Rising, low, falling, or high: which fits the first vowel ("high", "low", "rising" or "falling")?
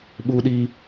high